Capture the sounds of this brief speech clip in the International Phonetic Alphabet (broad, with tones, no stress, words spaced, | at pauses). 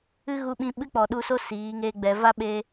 ɨ˦ɣu˧ɓĩ˧ ɓɨ˦k͡pɔ˨ɗu˧so˦ siː˨˦ŋe˦ɡ͡bɛ˧ va˦ɓe˧